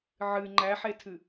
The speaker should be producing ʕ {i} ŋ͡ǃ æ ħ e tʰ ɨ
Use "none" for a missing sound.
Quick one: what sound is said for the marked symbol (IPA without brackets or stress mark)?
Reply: ɨ